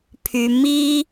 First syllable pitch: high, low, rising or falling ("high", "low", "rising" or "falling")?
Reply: high